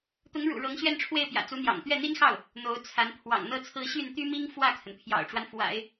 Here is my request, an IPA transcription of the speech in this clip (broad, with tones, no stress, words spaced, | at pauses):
t̪ʊ˧˥ŋɻṵ˨˩ ɻɤ˧˥ŋɕɥɛ˥˧nʈ͡ʂʰwe˥˩ɪ̯pjä̰˨˩ t͡su˧˥n̪jɑ̰˨˩ŋ t̪ɥɛ˥˩n̪i˥nxɑ˥˩ʊ̯ | n̪o˧˥ʊ̯ t͡sʰa˧˥n pʰwɑ̰˨˩ŋn̪ɤ˥t͡sʰɹ̩˥˧ ɕy˥˩nt̪y˥mi˥ŋ fwä˥˩kʰə˩npʰjɑ̰˨˩ʊ̯ʈ͡ʂwa˦n fwa̰˨˩˦ɪ̯